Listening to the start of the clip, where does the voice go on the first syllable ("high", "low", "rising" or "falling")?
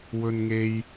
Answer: high